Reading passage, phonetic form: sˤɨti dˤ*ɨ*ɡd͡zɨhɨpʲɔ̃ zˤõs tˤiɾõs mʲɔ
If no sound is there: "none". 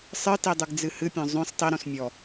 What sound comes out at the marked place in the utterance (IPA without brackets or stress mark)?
ɨ